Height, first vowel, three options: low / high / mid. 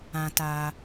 low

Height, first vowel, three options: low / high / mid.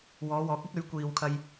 mid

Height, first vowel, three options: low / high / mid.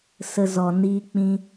mid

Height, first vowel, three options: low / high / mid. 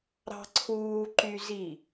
low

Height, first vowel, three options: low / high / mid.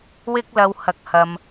high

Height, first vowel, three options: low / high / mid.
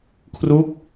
high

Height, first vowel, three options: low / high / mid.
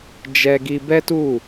mid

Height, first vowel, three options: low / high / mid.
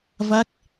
low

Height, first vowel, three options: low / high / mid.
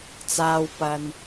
low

